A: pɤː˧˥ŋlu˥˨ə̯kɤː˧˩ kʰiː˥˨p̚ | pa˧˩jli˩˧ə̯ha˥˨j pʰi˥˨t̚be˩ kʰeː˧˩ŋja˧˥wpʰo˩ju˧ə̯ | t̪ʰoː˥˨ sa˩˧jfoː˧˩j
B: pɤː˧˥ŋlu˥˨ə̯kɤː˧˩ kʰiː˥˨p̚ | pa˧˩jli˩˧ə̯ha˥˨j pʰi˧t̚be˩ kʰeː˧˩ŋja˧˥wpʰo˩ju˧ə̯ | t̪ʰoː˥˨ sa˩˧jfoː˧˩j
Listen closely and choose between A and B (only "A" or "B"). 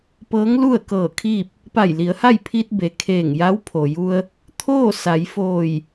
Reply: B